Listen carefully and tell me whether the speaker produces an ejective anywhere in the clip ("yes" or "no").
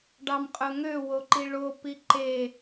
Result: yes